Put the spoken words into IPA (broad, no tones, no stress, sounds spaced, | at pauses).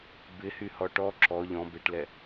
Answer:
b ɪ h y h ɔ ʈ ɔ ǁ ɔ ʎ ɔ̃ b ɪ ʈ l ɛ